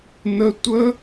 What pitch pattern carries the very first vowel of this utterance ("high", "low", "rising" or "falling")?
high